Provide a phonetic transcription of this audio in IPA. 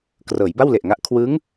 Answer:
krɤː˩˦jba˥˩wle˨˩ʔŋa˦˥ʔ kʰwɯ˦˥ŋ

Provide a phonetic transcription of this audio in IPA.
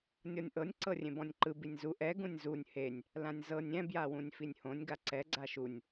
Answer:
nʲɔnʲʔɤnʲ ǀɤrʲẽbɔ̃nʲǃɯ binʲzu ʔɛ ɡũnʲzunʲ henʲ | lãnʲzɤnʲ ɛ̃ bjawũnʲfinʲhõnʲ ɡaǀɛ ɡ͡ǀaʃunʲ

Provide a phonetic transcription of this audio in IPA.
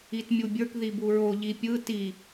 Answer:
itmʲubʲə˞k ðibuɹo ʎipʲɯ ti

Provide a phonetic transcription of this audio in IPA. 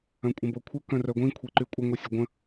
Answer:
œ̃kʷʼə̃bokʷʰə kœ̃rœɡʷĩ kʷʰeǃykʷʼə ŋʷisʲəɡʷə̃

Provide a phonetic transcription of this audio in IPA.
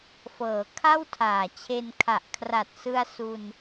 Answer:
fɤː˩˦kʰa˥˩w tʰaː˨˩t͡ɕʰe˧nkʰa˨˩ʔ kʰra˨˩t̚sɯ˧a̯su˧n

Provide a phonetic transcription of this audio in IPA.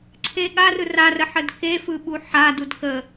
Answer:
ǀʰeɠa rɯrarəħəd kefɯɓu ħa dudkə

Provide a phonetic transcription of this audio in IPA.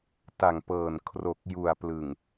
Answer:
ta˨˩ŋpɤː˨˩n kʰro˨˩k̚ ju˨˩a̯plɯ˨˩ŋ

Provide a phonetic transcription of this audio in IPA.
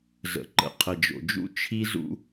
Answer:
zə̰˨ ǃə̰˨ qʰə˨d͡ʒo̰˨d͡ʒṵ˦ t͡ʃʰi˦zṵ˦

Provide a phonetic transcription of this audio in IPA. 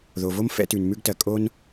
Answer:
ðo˩vo˥m fɛ̰˥tʉ˩nmʉ˥ɡtɜ˩ kʼo˥n

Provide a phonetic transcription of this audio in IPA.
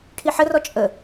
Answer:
ʈʰiħərɔ t͡ʃʼə

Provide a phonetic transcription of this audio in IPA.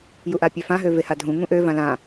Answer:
juʔapʲøfã ɦøvehadʱũ ŋũʔø vãlã

